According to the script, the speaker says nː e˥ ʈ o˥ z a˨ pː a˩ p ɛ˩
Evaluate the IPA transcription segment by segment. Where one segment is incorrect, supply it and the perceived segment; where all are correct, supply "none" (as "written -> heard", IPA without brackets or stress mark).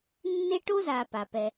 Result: pː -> p